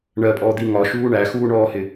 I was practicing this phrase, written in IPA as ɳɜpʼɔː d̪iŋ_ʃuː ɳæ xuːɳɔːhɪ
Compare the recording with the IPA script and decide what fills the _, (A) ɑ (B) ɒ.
B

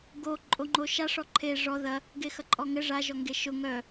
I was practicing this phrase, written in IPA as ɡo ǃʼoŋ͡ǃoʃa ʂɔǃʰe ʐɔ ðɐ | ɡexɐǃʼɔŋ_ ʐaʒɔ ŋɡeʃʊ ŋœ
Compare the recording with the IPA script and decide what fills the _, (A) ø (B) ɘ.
B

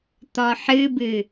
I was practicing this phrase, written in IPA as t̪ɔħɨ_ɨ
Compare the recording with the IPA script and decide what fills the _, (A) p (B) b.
B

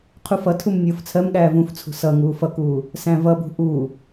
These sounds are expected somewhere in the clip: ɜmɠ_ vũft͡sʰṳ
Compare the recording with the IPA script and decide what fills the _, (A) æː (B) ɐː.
A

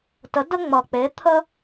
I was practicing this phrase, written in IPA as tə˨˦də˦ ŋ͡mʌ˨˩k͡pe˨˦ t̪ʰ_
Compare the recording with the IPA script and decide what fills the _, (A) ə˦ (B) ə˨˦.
A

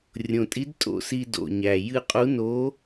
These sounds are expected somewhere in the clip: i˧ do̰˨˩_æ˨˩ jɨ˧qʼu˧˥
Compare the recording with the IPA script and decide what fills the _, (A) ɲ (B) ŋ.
A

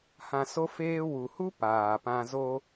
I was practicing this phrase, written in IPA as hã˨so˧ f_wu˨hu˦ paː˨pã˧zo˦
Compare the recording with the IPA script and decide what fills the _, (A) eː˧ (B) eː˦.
A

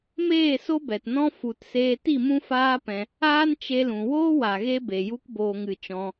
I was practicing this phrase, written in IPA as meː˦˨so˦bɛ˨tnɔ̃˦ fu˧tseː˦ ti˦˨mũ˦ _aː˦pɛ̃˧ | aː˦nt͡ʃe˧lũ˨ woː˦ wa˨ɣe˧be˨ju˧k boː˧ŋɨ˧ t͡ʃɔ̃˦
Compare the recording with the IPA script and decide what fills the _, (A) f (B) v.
A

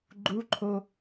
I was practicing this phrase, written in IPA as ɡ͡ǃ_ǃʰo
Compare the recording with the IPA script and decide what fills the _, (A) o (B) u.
B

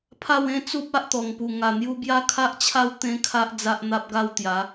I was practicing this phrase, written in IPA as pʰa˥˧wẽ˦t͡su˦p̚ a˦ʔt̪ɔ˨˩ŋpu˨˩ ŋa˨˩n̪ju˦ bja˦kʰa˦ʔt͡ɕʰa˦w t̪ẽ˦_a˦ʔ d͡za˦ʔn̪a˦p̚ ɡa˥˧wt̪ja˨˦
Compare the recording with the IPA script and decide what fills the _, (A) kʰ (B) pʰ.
A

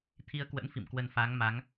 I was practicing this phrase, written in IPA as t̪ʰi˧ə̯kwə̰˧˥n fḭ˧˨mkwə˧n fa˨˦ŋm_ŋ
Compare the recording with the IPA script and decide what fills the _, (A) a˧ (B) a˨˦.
B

